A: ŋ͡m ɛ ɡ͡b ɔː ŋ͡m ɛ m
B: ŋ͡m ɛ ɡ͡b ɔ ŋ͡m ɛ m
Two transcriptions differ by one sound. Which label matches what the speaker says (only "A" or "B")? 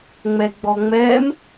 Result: B